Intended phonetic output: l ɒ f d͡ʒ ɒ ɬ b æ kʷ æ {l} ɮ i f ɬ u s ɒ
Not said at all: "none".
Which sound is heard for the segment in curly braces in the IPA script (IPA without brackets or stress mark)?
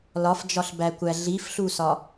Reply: none